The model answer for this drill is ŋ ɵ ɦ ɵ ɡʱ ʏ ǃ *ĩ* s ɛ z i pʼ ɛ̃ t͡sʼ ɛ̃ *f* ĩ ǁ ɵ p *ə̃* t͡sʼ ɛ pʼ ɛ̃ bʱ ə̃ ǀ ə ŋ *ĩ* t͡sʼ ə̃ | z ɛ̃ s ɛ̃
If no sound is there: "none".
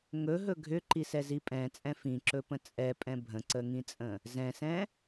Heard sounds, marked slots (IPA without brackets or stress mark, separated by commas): i, f, ə̃, ĩ